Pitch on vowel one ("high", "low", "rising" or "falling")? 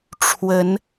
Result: rising